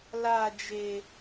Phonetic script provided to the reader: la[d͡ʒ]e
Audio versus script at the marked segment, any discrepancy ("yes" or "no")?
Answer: no